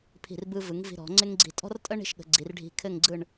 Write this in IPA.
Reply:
pʰ i̤˧˩ r b ɯ˧ v ɯ˩˧ ŋ v i̤˧ ɾ ɔ̤˩˧ ŋ͡ǀ ɪ˥ ŋ ɡ͡ǀ i̤˧ tʼ ɔ̤˥ r tʼ ə˥ ɳ i̤˥˧ ʃ ɠ ə̤˩˧ ɡ͡ǀ i˩˧ r ɖʱ i̤˧ kʰ ɘ˥˧ ŋ ɡ͡ǀ ɯ˥˧ ɳ

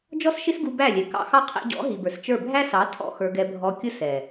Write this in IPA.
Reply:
d͡ʒ ɔ˦ s ʃ ɪ˦ s ɡ u˧ b æ˦˨ lʲ ɛ˨ k ɑ̰˦ x ɑ˦ qʰ æ̰˧ ɟ ɔ̰˨˦ ɦ i˨ b ə˞˨ s t͡ʃ ə˞˦˨ bʱ æ˦ s ɑ˨˦ tʰ ɔ̰˦˨ x ə˞˧ ɡ ɛ˧ bʱ ɔ˧ kʲ ʊ˦ s ɛ˨

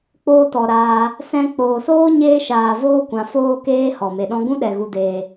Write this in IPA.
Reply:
k͡p oː˧ t ɔ˨ ɾ aː˧ | s ɛ̃˧ k͡p oː˨ s oː˦ ɲ eː˦ ʃ aː˨ v oː˦ kʷ ã˨ f oː˦ k eː˦ h ɔ˨ m e˨ ɗ ɔ̃˦ ɡ ũ˦ ɗ ɛ˨ ɣ u˨ d eː˨

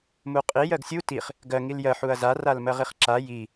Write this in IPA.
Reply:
m u qʼ i j ɜ ɡ sʲ u t i χ | ɡ ɜ ŋ i l j ɜ ħ u ɐ̯ z a r a l m ɜ ʁ i χ ǁ a j i

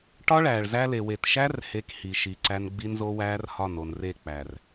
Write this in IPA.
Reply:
ʈ ɒ˦ ɭ æː˨ ɭ z æ˦ l e˨ w e˨ t ʃ æ˦ r h e˦ k h i˨ ʃ i˨ ǀ æ˦ n ɡ͡b i˦ n z o˦ w æː˦ r h ɒ˦˨ n o˨ n r e˦˨ k͡p æ˨ r

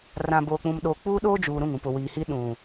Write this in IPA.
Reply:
r ã˨ b oː˨ k͡p ũ˨ m ɗ oː˨ k͡p uː˦ ɗ oː˦ d͡ʒ uː˨ ɾ ũ˦˨ ŋ ũ˨ p ʊ˨ w iː˨ h i˦ ɗ ũ˨

